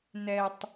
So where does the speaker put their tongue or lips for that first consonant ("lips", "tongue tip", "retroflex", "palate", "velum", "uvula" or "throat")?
tongue tip